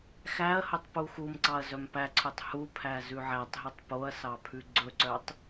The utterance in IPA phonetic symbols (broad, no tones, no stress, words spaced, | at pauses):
xæɐ̯hɵtˤ puxumǀɑɐ̯ zœmpæǀʰœtˤ hupʰæ zʉʕætˤɦʉtˤ poɐ̯sɑpʰʉ ɡ͡ǀɵǀœtˤ